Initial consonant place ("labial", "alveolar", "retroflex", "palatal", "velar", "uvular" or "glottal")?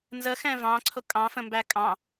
alveolar